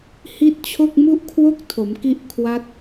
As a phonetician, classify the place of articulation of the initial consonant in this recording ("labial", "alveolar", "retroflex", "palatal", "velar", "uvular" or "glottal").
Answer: glottal